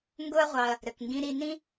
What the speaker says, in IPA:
ŋɡʊ˦ɐ̯ʁʷɑ˧ɐ̯ | ɾɘ˨kŋɡĩ˧ ɾi˧ nĩ˦

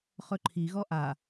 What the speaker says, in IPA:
χɵǃʰiɣɔ ʔa

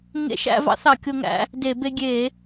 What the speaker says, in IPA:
ŋḛ˧ʃæ̰˧ vɑ̰˧˥θɑ˧˩˧kʲo˧ŋæ̰˧ | de˧˩˧be˧ɡʲe˧˩˧

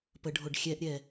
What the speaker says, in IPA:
pəɖʱoɖxʲɛʔɾʲɛ

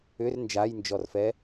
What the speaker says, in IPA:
ʏr nd͡ʒajnd͡ʒɔrfɛ

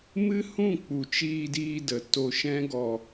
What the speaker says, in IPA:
mɨ˦hũ˦˨k͡pu˨ t͡ʃiː˧diː˧də˨ to˧ʃɛ̃˦ɡɔ˧

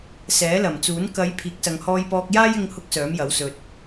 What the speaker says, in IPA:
sɛː˨˥lɐ˨˩mt͡suː˨˥n kɐ˨˧j pʰiː˨˥k̚sɐ˨ŋ hɔː˧jpɔː˧k̚jaː˥j ɪ˥ŋhʊ˥k̚ sœː˨˥mjɐ˨˥wsɵ˧t̚

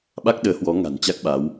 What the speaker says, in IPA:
ɓa˦˥k̚ɗəː˨˦hwɔ˨˦ŋa̤˨˩n t͡ɕa˦˥k̚ɓa˨˦w

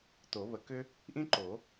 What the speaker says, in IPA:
to˨˩˦βə˨˩˦kʏ˥ | ʔĩ˥ǃo˨˩˦

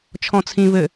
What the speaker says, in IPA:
t͡ʃʰɔ̃t͡sʰĩ βɘ

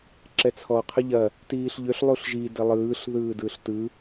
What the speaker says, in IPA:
ǁɛt͡sʰɔ qʰəʎɐ | tiːɬʎʏɬ lˠuɬʒi dɘlˠɯːɬ ðɯːdɯɬtɯ

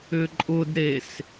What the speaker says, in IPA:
ʏǃʼʊdɾes

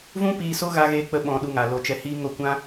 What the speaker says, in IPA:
vũ˦piː˧ so˦ ɣa˦ɣe˦k͡pə˦ ɓɔ̃˧ɗu˧ŋa˨ lo˧t͡ʃɛ˧hiː˦ ŋo˦˨kʷã˦

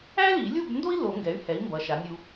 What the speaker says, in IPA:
æ˥li˨˩˦lʲu˥˨bndo˥i̯ lo˨˩˦ŋɡɛ˩˥y̯hɛ˩˥i̯ mbʌ˩˥ʃa˩˥nʲu˧

